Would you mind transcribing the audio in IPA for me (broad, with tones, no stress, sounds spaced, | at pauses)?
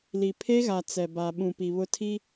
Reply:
l i˨ pʰ e˦ ɣ a˨ t͡s ɛ˨ b a˨ ɓ ũ˨ p i˨ β ʊ˦ tʰ i˦